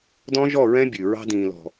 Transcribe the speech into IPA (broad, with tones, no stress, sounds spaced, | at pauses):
d ɔ̃˦ ʒ ɔ˦˨ ɹ ɛ̃˦ bʲ ʉ˨ ɹ ɑ̤˦ d ĩː˨ l ɔ̤˨